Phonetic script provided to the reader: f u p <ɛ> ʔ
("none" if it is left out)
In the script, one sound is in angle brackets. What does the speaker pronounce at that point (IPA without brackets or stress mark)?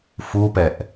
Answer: ɛ